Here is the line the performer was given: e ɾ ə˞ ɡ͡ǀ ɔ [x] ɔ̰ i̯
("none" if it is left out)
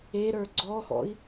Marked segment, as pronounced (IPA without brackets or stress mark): x